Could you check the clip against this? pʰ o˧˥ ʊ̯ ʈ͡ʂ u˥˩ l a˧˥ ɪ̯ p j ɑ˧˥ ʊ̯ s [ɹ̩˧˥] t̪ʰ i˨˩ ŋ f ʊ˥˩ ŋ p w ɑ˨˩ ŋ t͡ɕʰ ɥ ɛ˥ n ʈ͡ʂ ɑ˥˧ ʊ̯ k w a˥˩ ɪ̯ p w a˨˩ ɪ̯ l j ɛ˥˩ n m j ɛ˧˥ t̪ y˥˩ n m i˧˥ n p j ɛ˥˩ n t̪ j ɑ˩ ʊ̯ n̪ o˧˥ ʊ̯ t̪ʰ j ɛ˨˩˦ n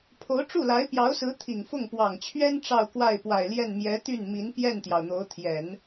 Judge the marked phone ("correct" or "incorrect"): correct